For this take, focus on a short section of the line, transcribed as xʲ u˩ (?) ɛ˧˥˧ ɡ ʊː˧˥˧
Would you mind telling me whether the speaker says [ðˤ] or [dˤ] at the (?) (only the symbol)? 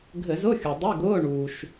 dˤ